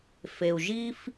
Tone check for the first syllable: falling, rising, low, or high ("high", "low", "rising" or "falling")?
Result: low